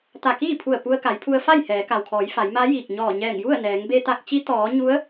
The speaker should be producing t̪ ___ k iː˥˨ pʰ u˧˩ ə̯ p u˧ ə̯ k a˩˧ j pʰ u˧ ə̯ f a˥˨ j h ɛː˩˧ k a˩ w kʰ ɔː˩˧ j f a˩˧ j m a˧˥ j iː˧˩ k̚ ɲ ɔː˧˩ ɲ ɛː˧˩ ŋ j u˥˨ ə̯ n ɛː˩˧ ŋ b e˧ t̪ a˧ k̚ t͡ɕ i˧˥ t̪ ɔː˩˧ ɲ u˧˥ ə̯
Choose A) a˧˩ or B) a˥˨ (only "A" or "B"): A